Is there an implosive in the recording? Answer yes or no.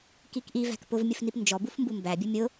no